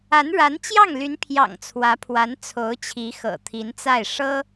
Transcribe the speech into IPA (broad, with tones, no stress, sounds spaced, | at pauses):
a˧˥ n ɻ a˧˥ n t͡ɕ j ɑ˥˩ ŋ l y˧˥ n pʰ j ɑ̰˨˩ ŋ t͡sʰ w ä˧˥ pʰ w a˧˥ n t͡sʰ o˧˥ ʊ̯ t͡ɕʰ i˧˥ x ɤ̰˨˩ t̪ʰ i˧˥ n t͡s a˥˩ ɪ̯ ʂ ɤ˥